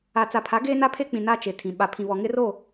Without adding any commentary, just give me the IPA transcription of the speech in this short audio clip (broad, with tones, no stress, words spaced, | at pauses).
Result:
a˨t͡sa˨pʰa˨˦ ɡeː˦na˦pʰe˦k͡pĩ˨ na˦t͡ʃe˨ tʰĩ˨ ɓa˨ pʰĩ˨βɔ˨ ŋɪ˦ro˦˨